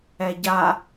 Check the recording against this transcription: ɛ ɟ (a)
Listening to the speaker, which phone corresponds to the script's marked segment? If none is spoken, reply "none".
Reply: a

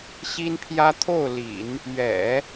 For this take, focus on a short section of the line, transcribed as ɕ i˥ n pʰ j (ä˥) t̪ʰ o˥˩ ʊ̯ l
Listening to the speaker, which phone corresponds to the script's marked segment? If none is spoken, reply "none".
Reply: ä˥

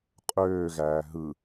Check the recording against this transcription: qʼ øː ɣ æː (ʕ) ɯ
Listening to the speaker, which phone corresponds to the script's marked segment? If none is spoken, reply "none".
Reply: ɦ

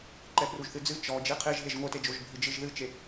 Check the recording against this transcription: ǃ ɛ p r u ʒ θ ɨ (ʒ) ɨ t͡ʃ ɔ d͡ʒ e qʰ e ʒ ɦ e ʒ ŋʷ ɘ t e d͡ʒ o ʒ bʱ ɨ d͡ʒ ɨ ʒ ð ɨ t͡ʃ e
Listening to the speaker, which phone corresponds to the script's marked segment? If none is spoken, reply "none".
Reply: d͡z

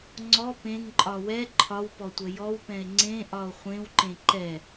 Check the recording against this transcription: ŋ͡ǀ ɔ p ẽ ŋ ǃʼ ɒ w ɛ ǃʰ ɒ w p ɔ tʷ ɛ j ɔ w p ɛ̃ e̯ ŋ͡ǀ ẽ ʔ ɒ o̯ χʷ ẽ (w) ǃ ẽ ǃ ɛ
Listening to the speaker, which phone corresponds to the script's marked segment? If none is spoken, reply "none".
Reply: w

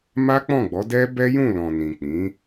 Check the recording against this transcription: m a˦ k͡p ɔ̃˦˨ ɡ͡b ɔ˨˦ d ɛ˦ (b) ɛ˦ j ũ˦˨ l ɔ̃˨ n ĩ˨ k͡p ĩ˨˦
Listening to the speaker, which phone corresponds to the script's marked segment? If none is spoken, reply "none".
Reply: b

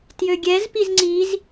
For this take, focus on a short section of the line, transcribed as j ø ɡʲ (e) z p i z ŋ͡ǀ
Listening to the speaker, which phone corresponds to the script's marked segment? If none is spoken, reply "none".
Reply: ɛ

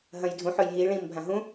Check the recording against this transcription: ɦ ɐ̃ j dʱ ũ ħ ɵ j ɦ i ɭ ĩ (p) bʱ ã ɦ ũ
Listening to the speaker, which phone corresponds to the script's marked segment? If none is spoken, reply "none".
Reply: m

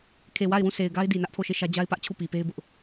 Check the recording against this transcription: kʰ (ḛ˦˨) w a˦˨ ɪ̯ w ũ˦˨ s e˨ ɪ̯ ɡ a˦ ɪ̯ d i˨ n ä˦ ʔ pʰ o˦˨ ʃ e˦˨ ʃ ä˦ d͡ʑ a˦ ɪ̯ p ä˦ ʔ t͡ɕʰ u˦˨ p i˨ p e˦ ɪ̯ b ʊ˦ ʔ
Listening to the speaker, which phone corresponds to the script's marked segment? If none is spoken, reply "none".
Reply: e˨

